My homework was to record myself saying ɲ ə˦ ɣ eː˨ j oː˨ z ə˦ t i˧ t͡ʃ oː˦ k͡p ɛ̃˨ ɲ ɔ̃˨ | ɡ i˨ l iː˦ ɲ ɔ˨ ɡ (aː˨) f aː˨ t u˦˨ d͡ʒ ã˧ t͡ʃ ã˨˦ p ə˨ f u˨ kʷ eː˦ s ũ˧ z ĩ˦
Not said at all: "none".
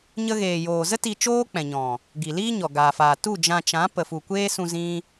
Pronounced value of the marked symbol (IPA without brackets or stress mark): aː˨